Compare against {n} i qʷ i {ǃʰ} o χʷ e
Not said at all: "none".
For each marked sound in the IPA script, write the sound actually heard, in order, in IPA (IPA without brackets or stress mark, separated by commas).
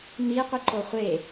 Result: n, ǃ